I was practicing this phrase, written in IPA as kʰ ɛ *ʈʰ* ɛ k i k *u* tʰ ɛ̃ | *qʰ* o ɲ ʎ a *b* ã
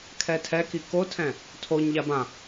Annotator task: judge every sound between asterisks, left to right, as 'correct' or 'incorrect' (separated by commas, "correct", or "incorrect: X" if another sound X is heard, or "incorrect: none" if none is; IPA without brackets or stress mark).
incorrect: tʰ, incorrect: o, incorrect: tʰ, correct